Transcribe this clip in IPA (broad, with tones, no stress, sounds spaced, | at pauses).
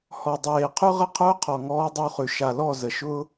h ɔ˨ dˤ eː˨ qʰ ʉ˦ ʁ ə˦ qʰ ʊː˦ qʰ ɔ˨ ŋ ɔː˦ dˤ ə˦ u̯ χ ʉ˨ ʃ a˨ l ɔ˦˨ z ə˨ ʃ ʊː˦